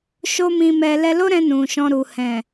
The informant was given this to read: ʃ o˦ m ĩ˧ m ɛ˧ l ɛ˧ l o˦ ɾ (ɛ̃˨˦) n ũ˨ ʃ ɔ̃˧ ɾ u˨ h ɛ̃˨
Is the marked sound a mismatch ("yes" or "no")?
yes